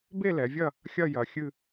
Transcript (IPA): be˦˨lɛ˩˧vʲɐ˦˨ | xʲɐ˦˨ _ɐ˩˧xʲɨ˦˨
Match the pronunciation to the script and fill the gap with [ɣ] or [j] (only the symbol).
j